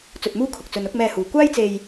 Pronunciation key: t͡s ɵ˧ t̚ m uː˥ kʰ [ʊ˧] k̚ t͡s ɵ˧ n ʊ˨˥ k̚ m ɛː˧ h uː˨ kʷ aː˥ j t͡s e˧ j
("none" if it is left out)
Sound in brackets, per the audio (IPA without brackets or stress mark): ʊ˨